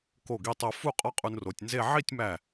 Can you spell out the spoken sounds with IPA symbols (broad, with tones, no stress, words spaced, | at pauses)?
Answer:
ko˧˩ɡi˧tˤo˧ fu˥˧ qʼɒ˥qʼu˧nro˩˧tʲnze˥˧ ʕi˥˧tʲmæ˧˩